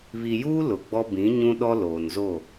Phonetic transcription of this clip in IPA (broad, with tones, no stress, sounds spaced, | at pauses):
β i˨ j uː˦ l ʊ˨ ɡ͡b ɔ˦ b ĩ˨˦ ɲ ũ˦ ɗ ɔ˦ l oː˨ n z o˦˨